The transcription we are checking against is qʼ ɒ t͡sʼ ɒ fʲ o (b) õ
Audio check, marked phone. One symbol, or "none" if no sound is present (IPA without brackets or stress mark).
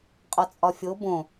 b